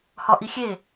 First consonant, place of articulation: glottal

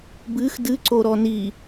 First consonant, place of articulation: labial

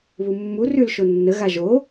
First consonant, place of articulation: labial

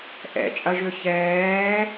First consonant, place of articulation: glottal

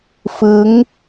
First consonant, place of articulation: labial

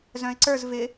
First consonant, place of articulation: alveolar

